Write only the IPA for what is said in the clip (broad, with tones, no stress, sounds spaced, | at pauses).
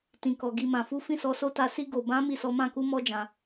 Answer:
t ĩ˨ k ɔ˨ ɡ i˨ m ã˨ f u˨˦ f ĩ˦˨ s ɔ˨˦ s o˦ t a˧ s i˧ ɡ o˨ b ã˨˦ m i˦˨ s ɔ˨˦ m ã˦˨ k u˧ m ɔ˧ d͡ʒ ã˨